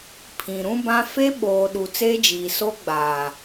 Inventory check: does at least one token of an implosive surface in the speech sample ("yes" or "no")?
yes